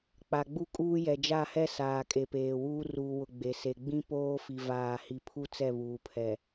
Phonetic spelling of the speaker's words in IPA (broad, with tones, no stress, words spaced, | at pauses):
k͡pa˨ɡ͡bu˦kʼuː˦ jɛ˨d͡ʒa˦˨hɛ˦ saː˨kʼe˨peː˨wuː˦ ruː˨wʊ˨ ɡ͡be˨se˨ ɡ͡bĩ˦ poː˦fi˨ vaː˦˨hi˦ pʰu˦t͡sɛ˦˨βuː˨pʰɛ˨